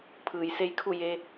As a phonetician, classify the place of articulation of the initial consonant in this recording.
labial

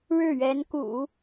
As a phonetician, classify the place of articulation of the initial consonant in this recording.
retroflex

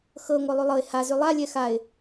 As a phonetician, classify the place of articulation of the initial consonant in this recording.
velar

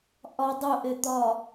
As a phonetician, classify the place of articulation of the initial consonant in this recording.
glottal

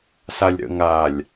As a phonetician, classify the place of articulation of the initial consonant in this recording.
alveolar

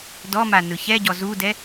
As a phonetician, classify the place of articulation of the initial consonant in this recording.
alveolar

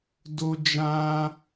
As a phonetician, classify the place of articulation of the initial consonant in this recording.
alveolar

